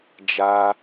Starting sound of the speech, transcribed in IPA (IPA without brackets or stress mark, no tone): d͡ʒ